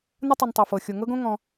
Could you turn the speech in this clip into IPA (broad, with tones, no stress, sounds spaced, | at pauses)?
n ə˥ tˤ u˨ n tˤ ɤ˩ f ɤ˩ xʲ o˩ ŋ ɤ˥ ɡ õ˥ ŋ ɔ̃˨